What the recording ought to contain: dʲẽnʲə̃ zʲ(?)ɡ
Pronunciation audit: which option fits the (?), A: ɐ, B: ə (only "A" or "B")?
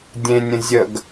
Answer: B